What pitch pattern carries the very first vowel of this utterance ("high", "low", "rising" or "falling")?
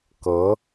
rising